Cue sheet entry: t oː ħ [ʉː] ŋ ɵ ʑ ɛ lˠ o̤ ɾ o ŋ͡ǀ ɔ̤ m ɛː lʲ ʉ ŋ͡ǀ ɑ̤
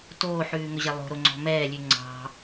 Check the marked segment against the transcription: correct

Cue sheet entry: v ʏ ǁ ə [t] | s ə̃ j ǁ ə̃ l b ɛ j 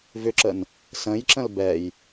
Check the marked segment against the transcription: incorrect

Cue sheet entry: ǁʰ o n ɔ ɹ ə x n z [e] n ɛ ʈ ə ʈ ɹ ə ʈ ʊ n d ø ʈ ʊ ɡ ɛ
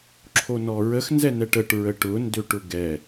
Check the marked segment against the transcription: incorrect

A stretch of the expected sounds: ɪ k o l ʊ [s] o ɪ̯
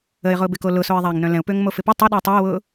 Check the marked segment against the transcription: correct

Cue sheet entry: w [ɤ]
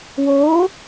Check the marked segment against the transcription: incorrect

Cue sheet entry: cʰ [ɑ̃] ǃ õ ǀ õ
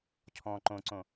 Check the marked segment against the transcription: incorrect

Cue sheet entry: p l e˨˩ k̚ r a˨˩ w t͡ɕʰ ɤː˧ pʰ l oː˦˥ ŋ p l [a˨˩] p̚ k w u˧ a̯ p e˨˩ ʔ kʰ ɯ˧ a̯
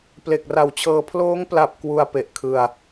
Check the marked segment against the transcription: correct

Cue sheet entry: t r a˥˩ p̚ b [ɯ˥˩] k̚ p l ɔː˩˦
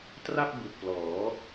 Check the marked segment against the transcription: incorrect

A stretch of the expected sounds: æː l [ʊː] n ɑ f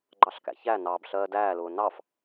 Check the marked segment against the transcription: correct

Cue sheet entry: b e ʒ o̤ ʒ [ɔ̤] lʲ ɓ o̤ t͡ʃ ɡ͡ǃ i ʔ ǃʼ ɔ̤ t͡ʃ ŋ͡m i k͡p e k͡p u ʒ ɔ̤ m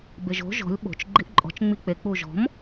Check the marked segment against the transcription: correct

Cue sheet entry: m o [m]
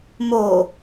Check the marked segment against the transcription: incorrect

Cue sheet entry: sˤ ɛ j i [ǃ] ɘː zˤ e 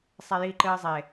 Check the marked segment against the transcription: correct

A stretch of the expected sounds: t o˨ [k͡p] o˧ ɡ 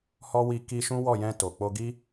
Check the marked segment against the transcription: correct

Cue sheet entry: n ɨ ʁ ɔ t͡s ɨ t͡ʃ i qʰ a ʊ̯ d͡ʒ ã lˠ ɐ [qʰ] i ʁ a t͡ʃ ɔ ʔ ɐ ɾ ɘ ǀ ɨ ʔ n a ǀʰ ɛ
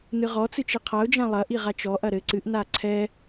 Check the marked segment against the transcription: incorrect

